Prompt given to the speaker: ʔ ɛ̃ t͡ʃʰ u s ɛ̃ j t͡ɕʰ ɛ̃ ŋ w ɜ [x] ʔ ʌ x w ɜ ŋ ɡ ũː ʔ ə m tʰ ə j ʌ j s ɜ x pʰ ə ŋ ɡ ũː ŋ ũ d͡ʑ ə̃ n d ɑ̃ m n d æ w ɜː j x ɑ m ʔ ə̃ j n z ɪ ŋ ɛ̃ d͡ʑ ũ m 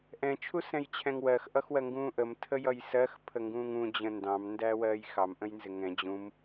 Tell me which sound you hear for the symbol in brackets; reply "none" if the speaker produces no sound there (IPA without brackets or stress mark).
x